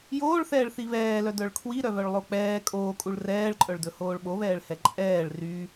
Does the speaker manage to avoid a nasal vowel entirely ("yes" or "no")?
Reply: yes